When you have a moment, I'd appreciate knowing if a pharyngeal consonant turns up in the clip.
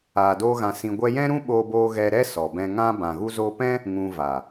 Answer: no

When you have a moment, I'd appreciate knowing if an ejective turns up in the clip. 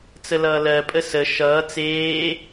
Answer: yes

